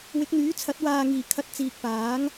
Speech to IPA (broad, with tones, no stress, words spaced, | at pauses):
wɪ˨˥k̚n̪yː˨˥t͡sʰɐ˨˥t̚ waː˨ŋiː˨˩ kʰɐ˨t̚ t͡siː˨k̚paː˨˥ŋ